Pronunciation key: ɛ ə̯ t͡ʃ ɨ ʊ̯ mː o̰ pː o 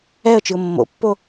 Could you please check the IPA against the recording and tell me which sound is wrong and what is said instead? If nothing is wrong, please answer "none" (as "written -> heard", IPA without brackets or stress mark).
none